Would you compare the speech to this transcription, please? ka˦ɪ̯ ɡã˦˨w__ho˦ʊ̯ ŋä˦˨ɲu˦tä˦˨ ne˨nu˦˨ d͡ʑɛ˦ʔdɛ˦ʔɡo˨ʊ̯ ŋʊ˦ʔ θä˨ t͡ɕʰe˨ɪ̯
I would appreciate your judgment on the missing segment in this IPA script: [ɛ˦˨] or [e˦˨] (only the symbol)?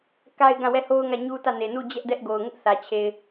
ɛ˦˨